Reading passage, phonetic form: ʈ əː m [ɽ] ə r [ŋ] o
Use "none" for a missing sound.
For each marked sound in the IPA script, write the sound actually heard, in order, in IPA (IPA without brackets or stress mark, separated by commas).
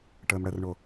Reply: ɽ, ɳ